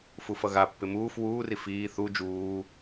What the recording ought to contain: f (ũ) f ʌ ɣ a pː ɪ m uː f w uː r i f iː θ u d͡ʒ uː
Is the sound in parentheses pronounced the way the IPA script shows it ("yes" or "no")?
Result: no